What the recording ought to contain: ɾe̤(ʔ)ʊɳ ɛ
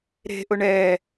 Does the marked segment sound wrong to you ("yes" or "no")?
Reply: no